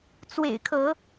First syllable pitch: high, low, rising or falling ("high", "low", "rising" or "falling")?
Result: low